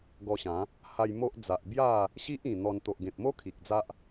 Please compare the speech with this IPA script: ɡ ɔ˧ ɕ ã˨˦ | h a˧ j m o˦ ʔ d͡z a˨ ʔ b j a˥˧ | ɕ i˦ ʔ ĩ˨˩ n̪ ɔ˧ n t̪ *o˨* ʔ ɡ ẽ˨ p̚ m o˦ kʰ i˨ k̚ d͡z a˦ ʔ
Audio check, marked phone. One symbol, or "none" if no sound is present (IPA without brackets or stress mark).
o˨